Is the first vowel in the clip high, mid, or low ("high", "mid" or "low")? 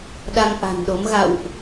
low